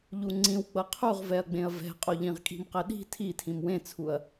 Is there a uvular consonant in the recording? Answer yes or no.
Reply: yes